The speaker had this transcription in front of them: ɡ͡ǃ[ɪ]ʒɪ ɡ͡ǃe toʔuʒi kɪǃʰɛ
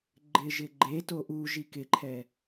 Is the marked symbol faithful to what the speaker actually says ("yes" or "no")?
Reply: yes